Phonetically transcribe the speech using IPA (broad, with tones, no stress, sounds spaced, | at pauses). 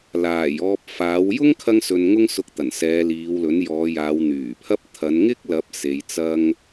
l aː˨˩ j ɔː˧ p̚ f aː˨˥ w j ʊ˥ ŋ kʰ ɐ˧ ŋ s ɵ˨ n ŋ ʊ˥ ŋ s ʊ˧ k̚ t̪ ɐ˨˩ n s ɛː˨˧ l iː˨˧ w l ɵ˨˥ n j ɔː˨˧ j aː˨˧ w n̪ yː˨˩ pʰ ɐ˥ p̚ t̪ʰ ɐ˨˧ n ŋ ɪ˥ k̚ l ɐ˨˥ p̚ s e˨˧ j t͡s ɐ˥ ŋ